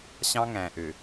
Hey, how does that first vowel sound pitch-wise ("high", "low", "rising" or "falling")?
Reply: high